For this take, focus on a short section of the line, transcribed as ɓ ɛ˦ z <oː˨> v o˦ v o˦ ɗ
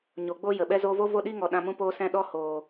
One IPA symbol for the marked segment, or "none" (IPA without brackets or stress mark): oː˦